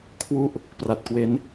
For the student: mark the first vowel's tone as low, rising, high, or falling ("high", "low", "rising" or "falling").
falling